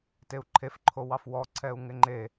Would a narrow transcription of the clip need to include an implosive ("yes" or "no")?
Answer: no